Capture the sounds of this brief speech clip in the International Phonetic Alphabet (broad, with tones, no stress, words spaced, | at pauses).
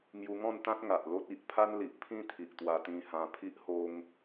ŋju˧ŋɔ̃˥˧nt̪ã˦t̚ ŋa˨ʔlo˦t̚ i˨ʔ pʰa˦nli˨ʔpʰĩ˥˧t̪ʰi˨ʔ t̪wa˧t̪ĩ˧hã˧ pʰi˦ʔho˦ŋ